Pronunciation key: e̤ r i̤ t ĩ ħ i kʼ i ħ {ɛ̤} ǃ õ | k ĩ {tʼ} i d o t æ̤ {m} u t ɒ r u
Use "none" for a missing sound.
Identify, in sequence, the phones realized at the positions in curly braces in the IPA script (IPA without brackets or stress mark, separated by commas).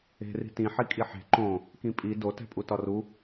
e̤, pʼ, pʼ